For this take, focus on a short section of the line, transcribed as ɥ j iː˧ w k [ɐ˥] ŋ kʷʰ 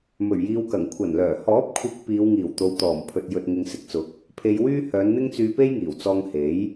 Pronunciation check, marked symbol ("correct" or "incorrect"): incorrect